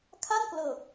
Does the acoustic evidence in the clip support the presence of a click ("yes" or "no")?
no